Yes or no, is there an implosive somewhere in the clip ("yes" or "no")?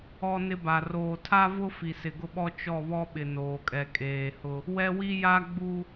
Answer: yes